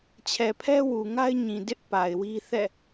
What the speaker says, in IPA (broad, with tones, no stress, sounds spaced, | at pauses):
t͡ɕʰ ɛ˨ pʰ ɛ˦ w u˨ ŋ a˦ ɪ̯ ɲ ĩ˨ d ɪ˦ ʔ p a˨ ɪ̯ w i˦ θ ɛ̰˦˨